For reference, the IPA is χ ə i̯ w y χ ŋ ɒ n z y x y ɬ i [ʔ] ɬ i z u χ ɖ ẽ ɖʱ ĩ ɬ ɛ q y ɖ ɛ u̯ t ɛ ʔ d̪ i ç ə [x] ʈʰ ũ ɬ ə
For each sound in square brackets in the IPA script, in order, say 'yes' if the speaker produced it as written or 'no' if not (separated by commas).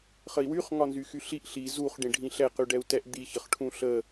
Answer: yes, no